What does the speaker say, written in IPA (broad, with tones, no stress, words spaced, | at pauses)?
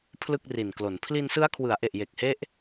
pʰlɯ˥˩k̚ri˨˩nklo˩˦n pʰli˧nsɯ˦˥a̯kʰwɯ˩˦a̯ʔe˨˩ʔ je˨˩k̚he˦˥ʔ